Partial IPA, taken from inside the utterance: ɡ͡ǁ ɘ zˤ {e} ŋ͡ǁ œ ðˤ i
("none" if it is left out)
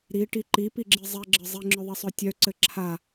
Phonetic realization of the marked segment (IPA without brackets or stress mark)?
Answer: i